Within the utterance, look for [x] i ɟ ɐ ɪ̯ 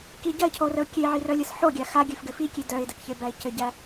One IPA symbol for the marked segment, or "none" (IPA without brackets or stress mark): k